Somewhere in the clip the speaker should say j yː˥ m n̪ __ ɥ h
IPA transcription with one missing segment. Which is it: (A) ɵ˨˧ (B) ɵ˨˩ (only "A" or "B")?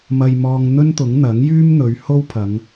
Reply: A